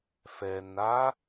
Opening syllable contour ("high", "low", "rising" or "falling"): low